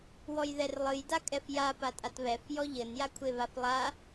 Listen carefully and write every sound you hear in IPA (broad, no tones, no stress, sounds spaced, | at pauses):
w ɔ j ð ɛ r lˠ ɨ j d a kʼ ɛ f j a p a tʼ a t β ɛ f j ɔ ʎ ɘ n j a kʷʰ e β a f lˠ a